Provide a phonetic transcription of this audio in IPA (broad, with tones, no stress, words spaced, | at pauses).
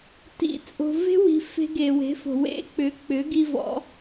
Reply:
tḭ˨ t͡sʼo̤˨ve̤˦wi̤˨ fe̤˧ɡe˨we̤˨˦fo̤˨ wḛ˦k͡pʏ˨˦k͡pʏ˨˦ ɡi˧vɔ̰˨˦